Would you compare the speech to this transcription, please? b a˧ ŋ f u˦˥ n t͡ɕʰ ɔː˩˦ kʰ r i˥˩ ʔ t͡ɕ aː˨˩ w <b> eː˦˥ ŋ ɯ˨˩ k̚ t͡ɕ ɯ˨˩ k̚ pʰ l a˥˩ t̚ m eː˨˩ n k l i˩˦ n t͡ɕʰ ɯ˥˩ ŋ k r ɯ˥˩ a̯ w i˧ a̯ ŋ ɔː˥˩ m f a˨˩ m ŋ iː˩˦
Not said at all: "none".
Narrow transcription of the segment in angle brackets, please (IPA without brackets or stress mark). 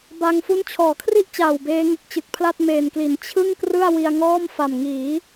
b